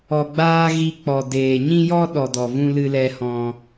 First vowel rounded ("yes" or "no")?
yes